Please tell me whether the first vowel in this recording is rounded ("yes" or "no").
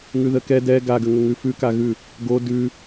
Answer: yes